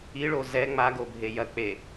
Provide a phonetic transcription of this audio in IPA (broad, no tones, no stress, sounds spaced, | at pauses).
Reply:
i ɭ o z ɛ ŋ͡m a ɡ o bʱ e j ɐ k͡p e